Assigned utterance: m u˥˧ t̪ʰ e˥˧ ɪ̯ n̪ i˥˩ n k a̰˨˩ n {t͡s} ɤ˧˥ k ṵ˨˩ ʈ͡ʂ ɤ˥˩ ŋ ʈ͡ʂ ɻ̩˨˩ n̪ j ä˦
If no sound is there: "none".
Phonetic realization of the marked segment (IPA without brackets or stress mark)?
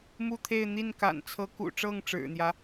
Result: t͡sʰ